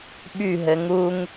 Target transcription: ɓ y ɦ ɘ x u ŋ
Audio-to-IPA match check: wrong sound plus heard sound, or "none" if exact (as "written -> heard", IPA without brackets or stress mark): x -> ŋ